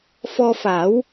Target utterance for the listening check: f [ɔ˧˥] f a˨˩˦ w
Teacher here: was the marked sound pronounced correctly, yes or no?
no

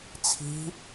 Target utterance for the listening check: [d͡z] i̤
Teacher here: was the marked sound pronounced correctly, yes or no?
no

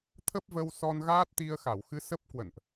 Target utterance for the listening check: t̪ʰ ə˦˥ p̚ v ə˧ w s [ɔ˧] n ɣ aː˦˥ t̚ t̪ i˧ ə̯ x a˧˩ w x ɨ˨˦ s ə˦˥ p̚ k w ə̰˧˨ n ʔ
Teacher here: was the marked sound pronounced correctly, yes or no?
yes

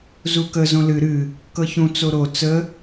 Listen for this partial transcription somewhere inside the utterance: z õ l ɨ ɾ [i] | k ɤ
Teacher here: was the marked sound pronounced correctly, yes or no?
no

